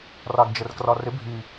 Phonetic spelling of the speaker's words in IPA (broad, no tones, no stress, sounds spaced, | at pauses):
r ɑ ɡ d͡ʒ ə r k r ɒ r ɪ bʱ i